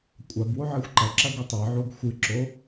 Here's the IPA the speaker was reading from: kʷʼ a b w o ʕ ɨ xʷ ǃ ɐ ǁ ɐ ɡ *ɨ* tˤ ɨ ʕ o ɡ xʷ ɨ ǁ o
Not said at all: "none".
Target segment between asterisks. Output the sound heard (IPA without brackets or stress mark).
ɨ